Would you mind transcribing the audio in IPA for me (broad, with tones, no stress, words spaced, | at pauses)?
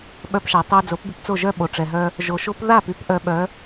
ɓœ˧pʃa˩ tˤo˧ d͡zo˩˥pby˧pt͡so˥˩ ʒœ˥ɓo˩ʈ͡ʂɛ˩ɦœ˧ | ʒo˩ʃo˥p ða˥˩py˥p ʔœ˩˥ɓœ˩˥